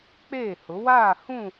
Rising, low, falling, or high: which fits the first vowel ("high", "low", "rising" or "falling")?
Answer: falling